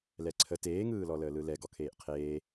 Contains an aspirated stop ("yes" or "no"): yes